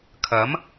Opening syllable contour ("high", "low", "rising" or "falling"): rising